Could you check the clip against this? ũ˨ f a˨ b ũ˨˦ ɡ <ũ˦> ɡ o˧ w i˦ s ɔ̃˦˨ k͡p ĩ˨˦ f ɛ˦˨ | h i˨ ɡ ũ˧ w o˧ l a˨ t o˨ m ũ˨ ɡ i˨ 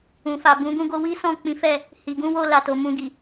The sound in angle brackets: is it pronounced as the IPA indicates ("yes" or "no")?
no